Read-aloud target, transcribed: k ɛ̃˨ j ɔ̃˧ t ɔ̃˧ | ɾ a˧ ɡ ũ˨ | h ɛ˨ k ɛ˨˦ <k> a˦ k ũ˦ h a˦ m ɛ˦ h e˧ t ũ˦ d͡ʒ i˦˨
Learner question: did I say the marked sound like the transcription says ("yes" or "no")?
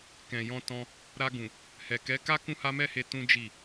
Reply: yes